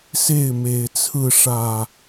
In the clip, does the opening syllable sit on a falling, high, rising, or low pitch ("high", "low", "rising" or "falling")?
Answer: falling